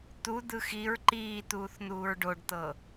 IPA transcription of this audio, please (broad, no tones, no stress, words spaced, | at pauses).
t̪ud̪ɯ xiɹ ǃiːt̪uːθ n̪uːɹɖoɖt̪ɤ